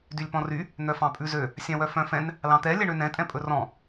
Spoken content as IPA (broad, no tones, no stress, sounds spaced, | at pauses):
d y lʲ p ɔ̃ r y | n̪ œ f ɑ̃ pʼ ʉ z ø | sʲ ɑ̃ w œ f œ̃ f ɛ̃ n | l ɑ̃ t̪ ɛ lʲ ɛ ɳ ø n ɛ̃ tʼ ɛ̃ pʼ ɵ r ɔ̃